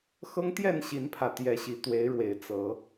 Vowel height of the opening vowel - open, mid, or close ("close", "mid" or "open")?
mid